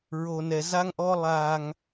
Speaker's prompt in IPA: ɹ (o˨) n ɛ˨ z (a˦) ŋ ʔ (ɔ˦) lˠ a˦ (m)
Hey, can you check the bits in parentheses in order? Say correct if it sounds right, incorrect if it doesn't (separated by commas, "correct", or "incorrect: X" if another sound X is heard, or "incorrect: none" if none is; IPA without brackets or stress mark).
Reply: correct, correct, correct, incorrect: ŋ